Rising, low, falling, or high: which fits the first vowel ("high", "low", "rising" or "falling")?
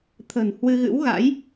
low